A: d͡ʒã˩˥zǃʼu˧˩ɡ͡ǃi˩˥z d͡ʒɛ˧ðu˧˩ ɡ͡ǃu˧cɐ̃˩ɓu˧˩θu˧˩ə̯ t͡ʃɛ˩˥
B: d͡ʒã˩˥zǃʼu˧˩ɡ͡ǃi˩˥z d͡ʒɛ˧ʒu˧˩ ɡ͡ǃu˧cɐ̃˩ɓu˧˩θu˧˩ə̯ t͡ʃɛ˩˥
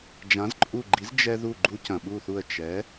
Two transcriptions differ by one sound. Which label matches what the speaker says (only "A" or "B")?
A